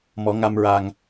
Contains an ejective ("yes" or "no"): no